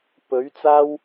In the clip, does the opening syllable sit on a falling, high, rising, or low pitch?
rising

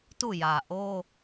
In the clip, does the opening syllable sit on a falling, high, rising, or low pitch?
falling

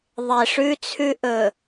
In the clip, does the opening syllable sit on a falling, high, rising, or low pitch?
low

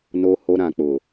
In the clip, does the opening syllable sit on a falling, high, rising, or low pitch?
low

